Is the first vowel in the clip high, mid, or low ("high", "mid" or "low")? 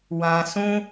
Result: low